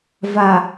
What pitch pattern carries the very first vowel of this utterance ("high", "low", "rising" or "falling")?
low